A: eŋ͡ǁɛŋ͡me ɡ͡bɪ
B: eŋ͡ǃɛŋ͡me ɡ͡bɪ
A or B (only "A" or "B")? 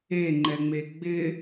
B